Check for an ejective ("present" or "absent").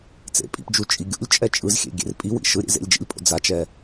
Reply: present